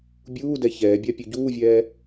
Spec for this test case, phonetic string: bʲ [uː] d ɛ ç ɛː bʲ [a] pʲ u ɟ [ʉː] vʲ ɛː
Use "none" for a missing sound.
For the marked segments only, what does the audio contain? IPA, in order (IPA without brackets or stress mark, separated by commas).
uː, a, uː